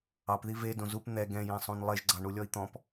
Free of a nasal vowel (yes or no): no